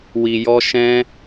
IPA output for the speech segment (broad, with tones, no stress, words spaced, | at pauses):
wi˧jɔ˦ ʃɛ̃˦